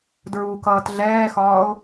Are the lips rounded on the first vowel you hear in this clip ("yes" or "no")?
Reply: yes